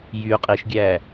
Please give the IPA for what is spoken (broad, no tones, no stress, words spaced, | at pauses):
jy qʼiʃɡʲæ